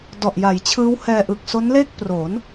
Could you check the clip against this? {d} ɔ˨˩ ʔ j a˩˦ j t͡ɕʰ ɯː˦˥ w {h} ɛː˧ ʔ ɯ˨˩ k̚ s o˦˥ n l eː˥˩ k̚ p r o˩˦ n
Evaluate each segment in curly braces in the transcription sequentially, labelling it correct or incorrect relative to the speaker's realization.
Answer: correct, correct

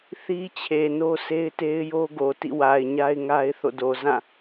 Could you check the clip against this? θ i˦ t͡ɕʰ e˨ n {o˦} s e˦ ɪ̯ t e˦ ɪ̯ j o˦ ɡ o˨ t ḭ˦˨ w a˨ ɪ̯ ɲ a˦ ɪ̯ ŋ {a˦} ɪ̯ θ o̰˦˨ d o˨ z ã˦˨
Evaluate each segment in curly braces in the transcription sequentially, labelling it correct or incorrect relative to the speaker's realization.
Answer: correct, correct

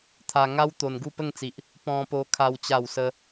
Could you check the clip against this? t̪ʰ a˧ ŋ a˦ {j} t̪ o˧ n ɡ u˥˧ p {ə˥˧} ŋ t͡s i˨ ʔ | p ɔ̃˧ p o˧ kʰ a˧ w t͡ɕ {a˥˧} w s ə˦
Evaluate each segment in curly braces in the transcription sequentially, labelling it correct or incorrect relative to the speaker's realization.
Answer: incorrect: w, correct, correct

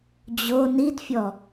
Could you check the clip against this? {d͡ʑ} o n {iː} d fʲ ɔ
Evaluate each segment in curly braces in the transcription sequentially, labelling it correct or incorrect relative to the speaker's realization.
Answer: correct, incorrect: i

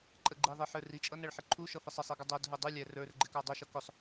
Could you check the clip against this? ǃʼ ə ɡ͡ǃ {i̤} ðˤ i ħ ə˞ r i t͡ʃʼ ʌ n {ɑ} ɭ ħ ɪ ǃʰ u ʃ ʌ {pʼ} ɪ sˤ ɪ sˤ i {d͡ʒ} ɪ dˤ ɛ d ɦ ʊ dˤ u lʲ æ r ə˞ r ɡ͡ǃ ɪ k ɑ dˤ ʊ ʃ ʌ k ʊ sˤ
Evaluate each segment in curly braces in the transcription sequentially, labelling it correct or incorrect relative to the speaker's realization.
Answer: incorrect: i, incorrect: ʌ, incorrect: f, incorrect: ɡ

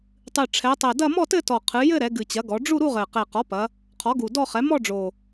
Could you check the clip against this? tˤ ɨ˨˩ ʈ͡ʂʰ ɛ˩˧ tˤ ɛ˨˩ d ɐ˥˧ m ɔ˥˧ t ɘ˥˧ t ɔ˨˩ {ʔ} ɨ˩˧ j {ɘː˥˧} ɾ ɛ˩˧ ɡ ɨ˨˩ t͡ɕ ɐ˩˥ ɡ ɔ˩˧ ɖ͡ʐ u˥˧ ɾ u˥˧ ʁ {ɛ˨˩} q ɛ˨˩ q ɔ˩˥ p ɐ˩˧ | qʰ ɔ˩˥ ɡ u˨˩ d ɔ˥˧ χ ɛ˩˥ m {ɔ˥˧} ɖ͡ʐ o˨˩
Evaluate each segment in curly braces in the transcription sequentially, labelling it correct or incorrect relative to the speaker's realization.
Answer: incorrect: qʰ, incorrect: ɘ˥˧, incorrect: ɘ˨˩, correct

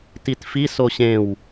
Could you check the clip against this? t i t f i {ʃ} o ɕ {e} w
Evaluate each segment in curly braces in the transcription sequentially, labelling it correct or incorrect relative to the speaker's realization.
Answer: incorrect: s, incorrect: ẽ

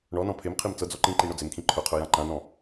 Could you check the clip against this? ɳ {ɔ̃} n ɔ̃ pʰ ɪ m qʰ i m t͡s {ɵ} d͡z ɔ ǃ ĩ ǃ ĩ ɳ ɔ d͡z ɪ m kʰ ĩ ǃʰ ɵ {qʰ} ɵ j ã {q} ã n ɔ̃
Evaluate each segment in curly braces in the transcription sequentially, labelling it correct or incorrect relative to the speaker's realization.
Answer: incorrect: ɔ, incorrect: ɤ, correct, incorrect: ǃ

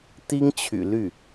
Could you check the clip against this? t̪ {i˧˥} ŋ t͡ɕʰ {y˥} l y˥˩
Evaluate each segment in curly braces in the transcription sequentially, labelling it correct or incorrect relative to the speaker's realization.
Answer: incorrect: i˥, incorrect: y̰˨˩

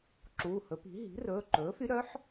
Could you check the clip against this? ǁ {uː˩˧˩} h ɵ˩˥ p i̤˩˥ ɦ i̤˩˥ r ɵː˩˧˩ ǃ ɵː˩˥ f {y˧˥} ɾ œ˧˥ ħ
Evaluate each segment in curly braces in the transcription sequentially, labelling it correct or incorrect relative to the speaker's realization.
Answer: correct, correct

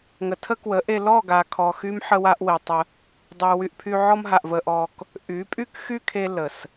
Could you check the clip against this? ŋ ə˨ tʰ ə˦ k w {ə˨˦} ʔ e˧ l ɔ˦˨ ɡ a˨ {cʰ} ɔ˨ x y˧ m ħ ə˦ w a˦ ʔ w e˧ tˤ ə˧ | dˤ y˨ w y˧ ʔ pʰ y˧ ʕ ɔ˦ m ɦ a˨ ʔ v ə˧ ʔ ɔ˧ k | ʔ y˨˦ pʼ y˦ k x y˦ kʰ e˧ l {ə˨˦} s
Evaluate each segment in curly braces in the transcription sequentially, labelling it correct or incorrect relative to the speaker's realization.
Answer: correct, incorrect: kʰ, incorrect: ə˨

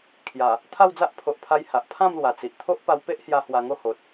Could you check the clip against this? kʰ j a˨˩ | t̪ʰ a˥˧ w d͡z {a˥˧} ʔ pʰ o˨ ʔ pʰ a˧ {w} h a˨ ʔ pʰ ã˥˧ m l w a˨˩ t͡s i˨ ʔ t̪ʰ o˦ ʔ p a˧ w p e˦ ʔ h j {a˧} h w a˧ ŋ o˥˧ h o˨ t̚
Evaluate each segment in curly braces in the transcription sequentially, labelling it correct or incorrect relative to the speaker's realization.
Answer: incorrect: a˦, incorrect: j, correct

